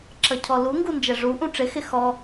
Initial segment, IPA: ǁ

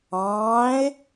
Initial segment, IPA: ɑ̃ː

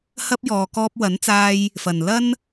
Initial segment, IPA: h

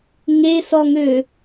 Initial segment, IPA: ŋ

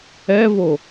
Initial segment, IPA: ɛ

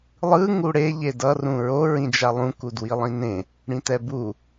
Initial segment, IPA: lˠ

